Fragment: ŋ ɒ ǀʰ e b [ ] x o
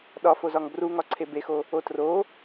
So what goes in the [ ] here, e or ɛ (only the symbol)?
e